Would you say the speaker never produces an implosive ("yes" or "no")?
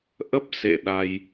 no